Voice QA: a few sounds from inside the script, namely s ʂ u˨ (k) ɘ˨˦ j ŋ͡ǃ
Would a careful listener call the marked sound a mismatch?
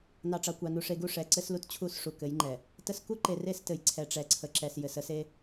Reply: no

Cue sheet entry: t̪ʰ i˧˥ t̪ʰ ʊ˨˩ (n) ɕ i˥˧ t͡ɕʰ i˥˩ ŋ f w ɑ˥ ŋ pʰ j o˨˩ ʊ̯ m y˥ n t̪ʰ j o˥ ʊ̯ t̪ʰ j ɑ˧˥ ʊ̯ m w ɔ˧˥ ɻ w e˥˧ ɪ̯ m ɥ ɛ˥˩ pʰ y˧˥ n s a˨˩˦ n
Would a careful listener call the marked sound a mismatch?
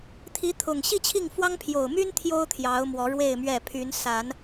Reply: yes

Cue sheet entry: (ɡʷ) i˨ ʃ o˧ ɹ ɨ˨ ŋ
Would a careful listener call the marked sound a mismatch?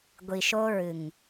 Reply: no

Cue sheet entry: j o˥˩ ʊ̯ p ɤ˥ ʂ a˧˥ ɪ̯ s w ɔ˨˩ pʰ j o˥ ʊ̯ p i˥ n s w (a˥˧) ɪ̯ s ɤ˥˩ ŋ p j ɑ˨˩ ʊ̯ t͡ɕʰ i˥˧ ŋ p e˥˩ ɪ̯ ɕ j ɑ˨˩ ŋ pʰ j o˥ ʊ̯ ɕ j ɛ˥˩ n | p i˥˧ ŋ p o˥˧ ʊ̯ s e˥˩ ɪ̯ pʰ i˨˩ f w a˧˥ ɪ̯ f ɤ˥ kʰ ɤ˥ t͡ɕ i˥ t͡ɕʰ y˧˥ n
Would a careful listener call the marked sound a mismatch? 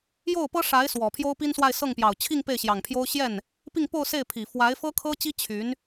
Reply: no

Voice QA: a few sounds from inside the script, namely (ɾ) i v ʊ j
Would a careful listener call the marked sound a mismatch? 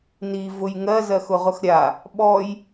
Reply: yes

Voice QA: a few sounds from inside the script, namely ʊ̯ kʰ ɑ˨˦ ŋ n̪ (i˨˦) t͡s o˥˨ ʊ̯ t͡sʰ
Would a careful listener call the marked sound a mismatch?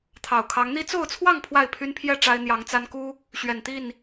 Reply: yes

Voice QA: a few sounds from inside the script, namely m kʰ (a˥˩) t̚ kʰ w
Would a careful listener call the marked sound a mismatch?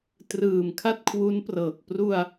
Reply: no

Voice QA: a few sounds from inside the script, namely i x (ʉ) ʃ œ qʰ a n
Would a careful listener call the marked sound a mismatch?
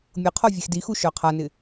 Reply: yes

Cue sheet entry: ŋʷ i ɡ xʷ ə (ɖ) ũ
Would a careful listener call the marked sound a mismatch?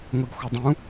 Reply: yes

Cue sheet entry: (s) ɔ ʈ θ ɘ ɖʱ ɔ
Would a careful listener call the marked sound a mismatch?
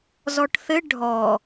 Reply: yes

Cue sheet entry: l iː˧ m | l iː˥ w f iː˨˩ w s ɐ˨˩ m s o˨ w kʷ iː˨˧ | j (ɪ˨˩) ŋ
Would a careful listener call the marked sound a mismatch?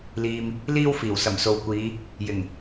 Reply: no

